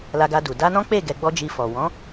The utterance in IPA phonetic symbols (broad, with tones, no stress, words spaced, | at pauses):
la˧ɡa˧du˨ da˧nɔ̃˦k͡pe˦˨ ɡɛ˧ ɡ͡bɔ˧ d͡ʒi˧fɔ˨ wɔ̃˨˦